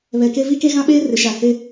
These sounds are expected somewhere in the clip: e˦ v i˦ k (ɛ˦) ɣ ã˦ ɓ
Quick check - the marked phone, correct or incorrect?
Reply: incorrect: e˦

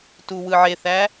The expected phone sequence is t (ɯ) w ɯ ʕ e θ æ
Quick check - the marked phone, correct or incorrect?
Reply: incorrect: u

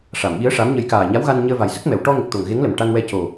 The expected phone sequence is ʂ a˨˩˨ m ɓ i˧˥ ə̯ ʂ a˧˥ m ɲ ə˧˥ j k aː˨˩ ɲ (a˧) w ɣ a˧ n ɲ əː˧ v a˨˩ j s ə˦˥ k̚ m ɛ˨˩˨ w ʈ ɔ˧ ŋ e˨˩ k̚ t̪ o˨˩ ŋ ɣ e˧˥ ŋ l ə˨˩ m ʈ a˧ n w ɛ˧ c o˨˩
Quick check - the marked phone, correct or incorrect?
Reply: incorrect: a˧˥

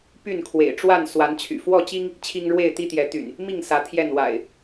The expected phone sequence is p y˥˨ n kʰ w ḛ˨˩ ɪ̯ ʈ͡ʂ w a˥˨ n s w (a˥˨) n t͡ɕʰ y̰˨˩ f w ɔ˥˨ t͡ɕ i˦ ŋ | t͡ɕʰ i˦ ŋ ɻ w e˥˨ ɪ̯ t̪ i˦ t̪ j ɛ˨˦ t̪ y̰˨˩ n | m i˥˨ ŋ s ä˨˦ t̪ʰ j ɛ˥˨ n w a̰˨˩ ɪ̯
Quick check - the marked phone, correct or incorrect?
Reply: incorrect: a˨˦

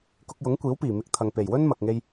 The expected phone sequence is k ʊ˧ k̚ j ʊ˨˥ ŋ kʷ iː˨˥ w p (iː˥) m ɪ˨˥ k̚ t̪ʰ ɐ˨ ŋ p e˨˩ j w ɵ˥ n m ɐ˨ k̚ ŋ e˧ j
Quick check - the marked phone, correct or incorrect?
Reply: incorrect: iː˨˩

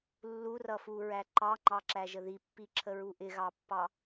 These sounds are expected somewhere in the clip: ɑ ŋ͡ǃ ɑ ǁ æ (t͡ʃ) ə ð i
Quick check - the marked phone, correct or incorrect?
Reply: incorrect: ʒ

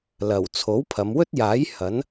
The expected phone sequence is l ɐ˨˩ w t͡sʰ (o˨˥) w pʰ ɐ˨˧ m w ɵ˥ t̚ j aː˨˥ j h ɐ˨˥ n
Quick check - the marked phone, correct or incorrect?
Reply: correct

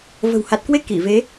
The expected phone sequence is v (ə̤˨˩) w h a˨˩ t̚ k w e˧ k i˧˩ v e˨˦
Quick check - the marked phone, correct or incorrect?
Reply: correct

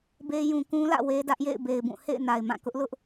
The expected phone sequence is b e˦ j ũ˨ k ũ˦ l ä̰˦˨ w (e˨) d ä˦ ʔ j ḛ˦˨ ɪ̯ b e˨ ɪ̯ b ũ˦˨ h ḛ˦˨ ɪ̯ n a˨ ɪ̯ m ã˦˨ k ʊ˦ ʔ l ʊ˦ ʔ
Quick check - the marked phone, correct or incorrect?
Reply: incorrect: e˦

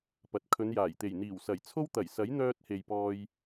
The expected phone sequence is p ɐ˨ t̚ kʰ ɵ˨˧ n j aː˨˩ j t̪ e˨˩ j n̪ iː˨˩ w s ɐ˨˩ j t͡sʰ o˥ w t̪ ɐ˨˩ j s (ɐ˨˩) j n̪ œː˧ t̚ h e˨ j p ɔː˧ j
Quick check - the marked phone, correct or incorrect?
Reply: incorrect: ɐ˨˥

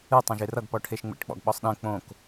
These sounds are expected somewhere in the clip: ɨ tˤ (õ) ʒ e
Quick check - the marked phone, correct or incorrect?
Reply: correct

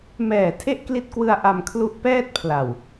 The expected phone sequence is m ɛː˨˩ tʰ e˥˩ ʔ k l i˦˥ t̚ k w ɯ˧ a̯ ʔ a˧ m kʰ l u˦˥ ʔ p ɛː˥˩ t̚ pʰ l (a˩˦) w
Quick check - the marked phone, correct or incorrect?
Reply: incorrect: a˨˩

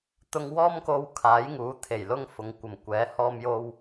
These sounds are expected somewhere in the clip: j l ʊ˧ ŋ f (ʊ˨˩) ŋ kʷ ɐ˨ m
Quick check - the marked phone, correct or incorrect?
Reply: incorrect: ʊ˨˧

